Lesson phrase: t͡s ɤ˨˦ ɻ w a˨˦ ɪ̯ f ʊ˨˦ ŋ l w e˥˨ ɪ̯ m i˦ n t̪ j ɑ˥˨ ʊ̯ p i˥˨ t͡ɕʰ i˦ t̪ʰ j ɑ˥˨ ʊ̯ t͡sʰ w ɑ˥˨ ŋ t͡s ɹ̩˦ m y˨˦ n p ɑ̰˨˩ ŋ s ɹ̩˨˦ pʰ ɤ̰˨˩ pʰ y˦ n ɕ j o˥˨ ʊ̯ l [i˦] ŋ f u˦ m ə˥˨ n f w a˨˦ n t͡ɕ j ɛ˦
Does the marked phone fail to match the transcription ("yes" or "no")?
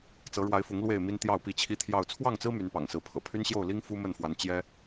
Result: no